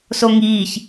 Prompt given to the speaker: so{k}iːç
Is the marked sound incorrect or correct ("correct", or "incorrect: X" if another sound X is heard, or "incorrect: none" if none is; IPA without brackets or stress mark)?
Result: incorrect: ŋ